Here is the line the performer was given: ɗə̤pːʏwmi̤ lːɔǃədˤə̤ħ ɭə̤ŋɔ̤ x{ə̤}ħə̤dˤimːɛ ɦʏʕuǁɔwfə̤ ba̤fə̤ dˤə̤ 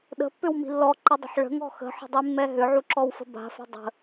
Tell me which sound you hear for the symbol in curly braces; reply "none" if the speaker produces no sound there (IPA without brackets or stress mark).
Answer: ə̤